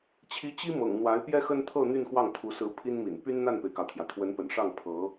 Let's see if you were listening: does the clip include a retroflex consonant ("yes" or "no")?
yes